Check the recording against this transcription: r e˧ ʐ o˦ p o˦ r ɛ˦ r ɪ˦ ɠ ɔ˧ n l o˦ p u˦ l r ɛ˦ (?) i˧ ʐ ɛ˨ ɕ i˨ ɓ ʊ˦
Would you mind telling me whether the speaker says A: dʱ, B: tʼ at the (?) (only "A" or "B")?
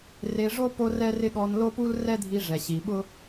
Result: A